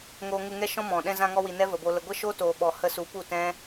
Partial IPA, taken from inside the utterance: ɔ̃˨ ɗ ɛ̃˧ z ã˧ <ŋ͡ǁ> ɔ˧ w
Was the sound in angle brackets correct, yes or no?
no